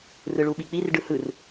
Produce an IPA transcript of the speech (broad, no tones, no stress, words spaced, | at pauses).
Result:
rɯɭuɓik͡pir ɖɯhɯr